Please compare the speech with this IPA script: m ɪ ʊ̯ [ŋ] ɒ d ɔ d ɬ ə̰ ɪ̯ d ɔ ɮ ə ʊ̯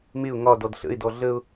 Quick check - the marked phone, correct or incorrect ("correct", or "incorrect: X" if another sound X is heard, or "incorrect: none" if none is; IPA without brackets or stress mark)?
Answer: correct